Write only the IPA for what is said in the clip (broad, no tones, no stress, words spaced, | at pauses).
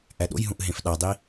ʔæɗo̰jɦũʔ ɦẽfɗɑdˤi